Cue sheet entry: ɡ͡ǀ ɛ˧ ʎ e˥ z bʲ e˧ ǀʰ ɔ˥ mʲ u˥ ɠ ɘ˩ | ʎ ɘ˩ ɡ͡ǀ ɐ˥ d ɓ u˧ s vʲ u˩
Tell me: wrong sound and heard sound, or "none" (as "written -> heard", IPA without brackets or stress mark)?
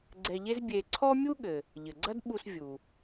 none